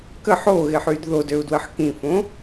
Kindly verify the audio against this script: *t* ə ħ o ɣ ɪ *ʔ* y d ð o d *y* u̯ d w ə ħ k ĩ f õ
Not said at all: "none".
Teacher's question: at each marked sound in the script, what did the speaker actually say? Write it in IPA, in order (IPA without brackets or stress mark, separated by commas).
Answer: k, ħ, ø